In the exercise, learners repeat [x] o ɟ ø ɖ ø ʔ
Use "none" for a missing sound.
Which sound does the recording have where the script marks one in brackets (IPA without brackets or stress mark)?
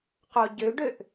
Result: q